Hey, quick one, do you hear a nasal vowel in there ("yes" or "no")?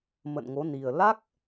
no